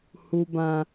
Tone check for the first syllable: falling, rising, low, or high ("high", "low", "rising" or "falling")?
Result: high